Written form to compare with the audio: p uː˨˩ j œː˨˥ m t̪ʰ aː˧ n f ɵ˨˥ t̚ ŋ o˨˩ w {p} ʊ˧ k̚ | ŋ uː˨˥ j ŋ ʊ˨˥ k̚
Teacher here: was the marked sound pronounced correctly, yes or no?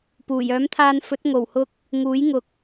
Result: no